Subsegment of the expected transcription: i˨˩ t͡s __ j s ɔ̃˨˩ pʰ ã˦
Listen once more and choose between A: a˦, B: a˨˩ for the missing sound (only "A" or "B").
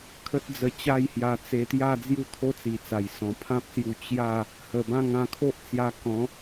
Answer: B